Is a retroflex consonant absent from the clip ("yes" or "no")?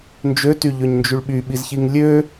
no